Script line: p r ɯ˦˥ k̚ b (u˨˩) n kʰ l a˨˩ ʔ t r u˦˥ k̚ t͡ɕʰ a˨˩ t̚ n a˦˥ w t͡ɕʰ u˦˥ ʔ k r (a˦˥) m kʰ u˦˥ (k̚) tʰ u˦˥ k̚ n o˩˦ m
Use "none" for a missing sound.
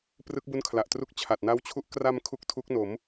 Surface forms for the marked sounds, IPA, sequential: u˦˥, a˧, k̚

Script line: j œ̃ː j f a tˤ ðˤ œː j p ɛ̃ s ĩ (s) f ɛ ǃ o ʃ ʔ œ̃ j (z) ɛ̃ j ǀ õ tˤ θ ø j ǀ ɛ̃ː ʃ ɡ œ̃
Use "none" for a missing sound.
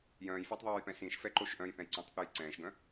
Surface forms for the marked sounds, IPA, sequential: ʃ, θ

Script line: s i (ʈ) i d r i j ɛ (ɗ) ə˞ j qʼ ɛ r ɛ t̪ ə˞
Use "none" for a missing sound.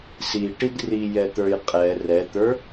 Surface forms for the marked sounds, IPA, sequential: ʈ, t̪

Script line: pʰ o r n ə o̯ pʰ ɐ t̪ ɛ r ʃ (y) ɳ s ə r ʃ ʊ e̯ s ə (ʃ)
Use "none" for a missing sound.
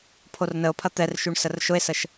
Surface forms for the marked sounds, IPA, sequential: y, ʃ

